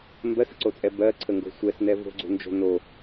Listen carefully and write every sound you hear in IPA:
m b ɜ s ə̤ ǀ o t͡sʼ ɛ b ɜ ǀʰ ə ŋ ɡ o̤ sʷ ɛ s n ɛ v o̤ ɡ͡ǀ o̤ n d͡ʒ o̤ n o

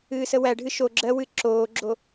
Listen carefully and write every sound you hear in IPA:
ɨː s ə w æ ɖʱ ɨ ʃ o ɡ͡ǁ ɜ w ɨ ǁ oː ɡ͡ǁ o

